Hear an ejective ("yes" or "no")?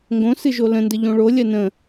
no